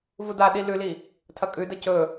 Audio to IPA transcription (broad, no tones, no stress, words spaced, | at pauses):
vudaɗi lʉli | tʰɐkʼʉdɐ cɵ